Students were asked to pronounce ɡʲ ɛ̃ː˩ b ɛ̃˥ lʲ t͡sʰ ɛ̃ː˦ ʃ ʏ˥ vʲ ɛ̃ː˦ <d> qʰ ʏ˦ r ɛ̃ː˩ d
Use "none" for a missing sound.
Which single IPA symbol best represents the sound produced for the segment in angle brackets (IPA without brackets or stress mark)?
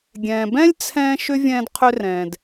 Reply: d